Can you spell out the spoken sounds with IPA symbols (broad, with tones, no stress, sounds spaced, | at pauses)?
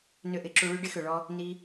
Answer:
n ʏ˦˨ ʔ ɪ˧ ǁ u˧ ɭ y˦ ɖ ɪ˦ x ø˨ ɭ ɔ˧ | n i˧